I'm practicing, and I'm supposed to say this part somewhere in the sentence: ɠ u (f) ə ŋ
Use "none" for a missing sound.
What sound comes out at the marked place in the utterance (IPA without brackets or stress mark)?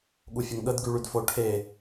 fʲ